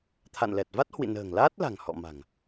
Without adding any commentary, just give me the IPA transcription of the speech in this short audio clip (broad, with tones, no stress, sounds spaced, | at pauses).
t̪ʰ a̰˧˨ n l ɛ˨˩ t̚ v a˦˥ t̚ h w ḭ˧˨ n ə̤ː˨˩ ŋ l aː˦˥ t̚ l a̤˨˩ ŋ h ɔ̰˧˨ m a̤˨˩ ŋ